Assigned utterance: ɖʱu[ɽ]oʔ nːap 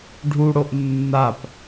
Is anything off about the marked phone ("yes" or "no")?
no